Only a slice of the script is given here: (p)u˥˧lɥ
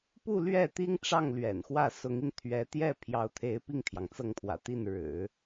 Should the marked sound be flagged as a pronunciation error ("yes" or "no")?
no